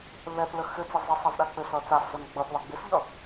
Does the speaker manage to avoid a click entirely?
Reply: yes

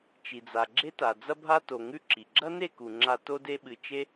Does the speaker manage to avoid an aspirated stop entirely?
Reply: yes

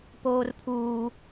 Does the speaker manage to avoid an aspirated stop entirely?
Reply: no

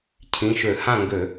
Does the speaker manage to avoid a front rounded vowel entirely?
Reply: no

